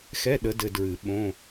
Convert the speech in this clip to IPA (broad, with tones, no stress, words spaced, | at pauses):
xɛ˧˥˧ɗə˨˦dɘ˨ dɹɨ˨˩˦ ɓõ˧˥˧